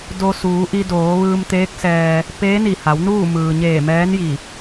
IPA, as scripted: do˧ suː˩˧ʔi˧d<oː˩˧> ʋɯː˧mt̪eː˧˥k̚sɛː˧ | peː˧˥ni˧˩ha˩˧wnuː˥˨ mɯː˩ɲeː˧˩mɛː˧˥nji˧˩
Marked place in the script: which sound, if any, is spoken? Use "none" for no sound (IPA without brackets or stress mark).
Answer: oː˩˧